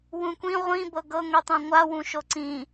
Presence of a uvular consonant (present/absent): present